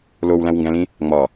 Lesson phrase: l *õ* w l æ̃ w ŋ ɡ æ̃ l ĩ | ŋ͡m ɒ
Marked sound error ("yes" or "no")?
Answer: yes